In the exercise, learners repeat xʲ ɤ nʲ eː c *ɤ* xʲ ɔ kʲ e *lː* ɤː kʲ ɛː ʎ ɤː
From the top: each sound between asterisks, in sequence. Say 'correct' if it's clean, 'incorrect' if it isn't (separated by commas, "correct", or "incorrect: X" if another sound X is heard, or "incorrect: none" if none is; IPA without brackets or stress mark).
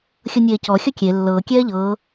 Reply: incorrect: ɔ, correct